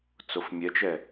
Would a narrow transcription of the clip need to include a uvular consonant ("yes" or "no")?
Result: no